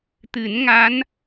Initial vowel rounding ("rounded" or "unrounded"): unrounded